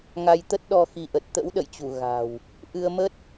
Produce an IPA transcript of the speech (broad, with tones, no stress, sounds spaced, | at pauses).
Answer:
ŋ a˧ j t̪ ə˦˥ t̚ ɗ ɔ˧ x i˨˦ ʔ ə˨˩ t̚ t̪ ə̰˧˥ w ɗ ə̰˧˨ j t͡ɕ u˧˩ ɣ a̤˨˩ w | ʔ ɨ˧ ə̯ m ə˦˥ t̚